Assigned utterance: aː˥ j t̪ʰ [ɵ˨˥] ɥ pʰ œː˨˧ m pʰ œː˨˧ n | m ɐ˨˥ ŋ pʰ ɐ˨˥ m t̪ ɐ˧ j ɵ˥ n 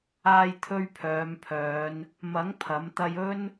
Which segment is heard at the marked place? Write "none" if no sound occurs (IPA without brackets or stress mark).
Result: ɵ˥